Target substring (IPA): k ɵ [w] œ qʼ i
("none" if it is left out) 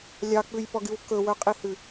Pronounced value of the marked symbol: w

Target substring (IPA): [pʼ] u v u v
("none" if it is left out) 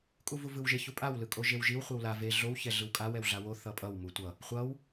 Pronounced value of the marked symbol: kʼ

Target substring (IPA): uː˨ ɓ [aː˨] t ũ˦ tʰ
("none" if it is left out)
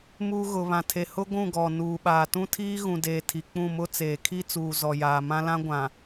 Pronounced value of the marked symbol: aː˨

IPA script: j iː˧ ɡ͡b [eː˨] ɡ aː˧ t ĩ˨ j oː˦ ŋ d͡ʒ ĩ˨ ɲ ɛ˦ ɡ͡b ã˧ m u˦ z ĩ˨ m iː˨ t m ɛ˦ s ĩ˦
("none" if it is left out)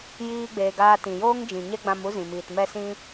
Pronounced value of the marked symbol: eː˨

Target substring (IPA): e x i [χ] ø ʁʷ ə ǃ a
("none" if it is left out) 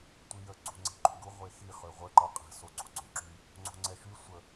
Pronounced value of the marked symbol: χ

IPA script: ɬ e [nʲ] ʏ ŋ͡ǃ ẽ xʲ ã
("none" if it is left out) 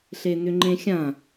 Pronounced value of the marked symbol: n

